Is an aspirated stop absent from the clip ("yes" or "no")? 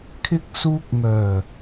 no